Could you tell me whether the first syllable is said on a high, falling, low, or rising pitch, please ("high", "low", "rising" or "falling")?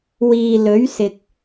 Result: low